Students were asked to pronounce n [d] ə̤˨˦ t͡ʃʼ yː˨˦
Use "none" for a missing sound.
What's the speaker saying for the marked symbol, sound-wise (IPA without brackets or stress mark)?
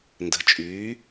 d